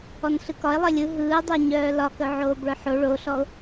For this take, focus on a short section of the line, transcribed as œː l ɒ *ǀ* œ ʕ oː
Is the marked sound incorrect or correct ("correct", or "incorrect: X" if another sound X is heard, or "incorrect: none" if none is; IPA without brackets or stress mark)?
incorrect: k